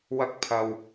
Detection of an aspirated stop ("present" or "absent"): present